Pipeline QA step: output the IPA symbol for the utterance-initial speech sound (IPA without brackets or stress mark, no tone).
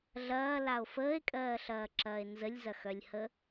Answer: ɮ